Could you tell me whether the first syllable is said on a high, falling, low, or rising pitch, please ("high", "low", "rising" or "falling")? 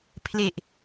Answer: low